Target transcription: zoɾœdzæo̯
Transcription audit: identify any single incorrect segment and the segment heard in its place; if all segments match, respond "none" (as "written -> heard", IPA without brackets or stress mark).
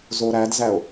œ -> æ